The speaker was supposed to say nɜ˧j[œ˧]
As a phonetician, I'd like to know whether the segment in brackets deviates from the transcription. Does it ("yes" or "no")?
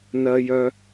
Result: no